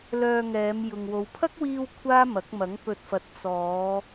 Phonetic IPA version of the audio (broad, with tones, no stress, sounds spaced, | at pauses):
l œː˧ ŋ ɛː˨˧ m j ʊ˨ ŋ w o˨˧ w pʰ ɐ˥ k̚ w iː˧ w kʷʰ aː˥ m ɐ˨˥ k̚ m ɐ˨˥ ŋ p ɵ˧ t̚ f ɐ˧ t̚ t͡s ɔː˨˧